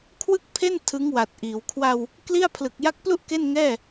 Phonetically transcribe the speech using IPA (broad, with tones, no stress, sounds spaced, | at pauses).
kʰ w ɯ˥˩ k̚ pʰ e˥˩ n tʰ ɯ˦˥ ŋ w a˨˩ t̚ ʔ iː˩˦ w kʰ w a˧ w | k l i˥˩ a̯ pʰ l ɯ˨˩ k̚ j a˦˥ k̚ p l u˥˩ ʔ k e˥˩ n ŋ ɛː˥˩